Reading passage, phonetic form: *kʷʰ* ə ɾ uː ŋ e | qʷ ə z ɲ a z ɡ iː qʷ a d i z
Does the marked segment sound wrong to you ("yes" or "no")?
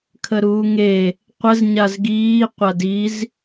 yes